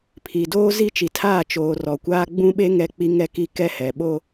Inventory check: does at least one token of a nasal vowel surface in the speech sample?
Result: yes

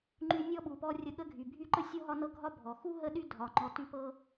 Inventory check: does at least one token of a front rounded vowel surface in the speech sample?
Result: yes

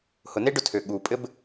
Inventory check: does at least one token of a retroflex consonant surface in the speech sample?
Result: yes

